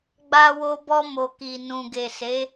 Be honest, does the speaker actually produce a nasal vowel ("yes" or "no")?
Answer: yes